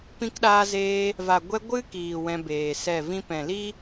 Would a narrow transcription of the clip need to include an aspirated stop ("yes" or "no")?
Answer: no